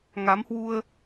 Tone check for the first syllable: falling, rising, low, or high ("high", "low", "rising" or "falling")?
rising